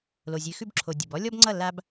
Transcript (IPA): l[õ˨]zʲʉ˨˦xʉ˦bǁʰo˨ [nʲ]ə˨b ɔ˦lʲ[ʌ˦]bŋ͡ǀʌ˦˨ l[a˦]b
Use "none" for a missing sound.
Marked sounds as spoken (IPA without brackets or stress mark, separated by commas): o˨, dʲ, ɔ˦, a˦